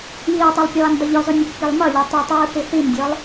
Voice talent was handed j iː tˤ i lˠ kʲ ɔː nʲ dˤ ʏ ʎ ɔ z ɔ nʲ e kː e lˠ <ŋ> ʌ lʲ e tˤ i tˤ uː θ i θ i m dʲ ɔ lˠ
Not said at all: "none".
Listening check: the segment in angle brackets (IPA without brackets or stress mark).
m